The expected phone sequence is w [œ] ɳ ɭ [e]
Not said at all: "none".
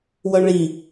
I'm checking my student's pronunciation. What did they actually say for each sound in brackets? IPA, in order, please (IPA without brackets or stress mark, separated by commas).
œ, i